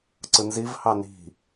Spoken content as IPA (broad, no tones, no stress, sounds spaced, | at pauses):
ǀ ɯ n z i v h ɑ n i̤